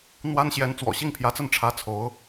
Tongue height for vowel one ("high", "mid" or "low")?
low